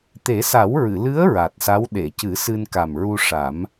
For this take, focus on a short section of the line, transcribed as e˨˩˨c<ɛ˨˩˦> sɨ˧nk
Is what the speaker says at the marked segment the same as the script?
no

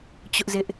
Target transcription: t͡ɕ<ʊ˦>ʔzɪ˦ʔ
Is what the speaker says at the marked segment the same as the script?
yes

